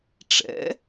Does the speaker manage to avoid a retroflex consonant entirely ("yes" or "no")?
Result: no